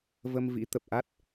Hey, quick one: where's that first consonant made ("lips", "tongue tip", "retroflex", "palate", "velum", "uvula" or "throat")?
lips